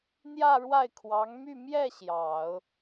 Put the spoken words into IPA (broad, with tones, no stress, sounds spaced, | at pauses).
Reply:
n̪ j ä˥˧ ɻ w a˥˩ ɪ̯ kʰ w ɑ˧˥ ŋ m y˥˧ m j ɛ˥˩ ɕ j ɑ˨˩˦ ʊ̯